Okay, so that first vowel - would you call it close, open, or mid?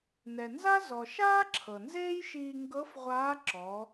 mid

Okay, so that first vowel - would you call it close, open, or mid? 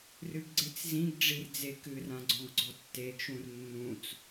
close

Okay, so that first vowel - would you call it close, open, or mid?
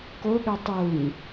mid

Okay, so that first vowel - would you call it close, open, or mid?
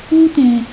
close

